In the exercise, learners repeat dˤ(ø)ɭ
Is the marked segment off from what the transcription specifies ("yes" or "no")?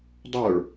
yes